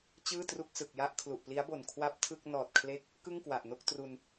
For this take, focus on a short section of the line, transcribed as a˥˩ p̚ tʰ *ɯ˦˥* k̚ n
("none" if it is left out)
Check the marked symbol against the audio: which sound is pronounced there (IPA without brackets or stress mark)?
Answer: ɯ˥˩